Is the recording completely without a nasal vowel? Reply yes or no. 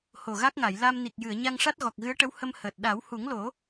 yes